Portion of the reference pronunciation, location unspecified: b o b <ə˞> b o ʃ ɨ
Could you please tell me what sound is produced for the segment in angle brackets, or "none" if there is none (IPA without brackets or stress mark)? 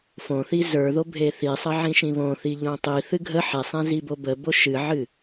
ə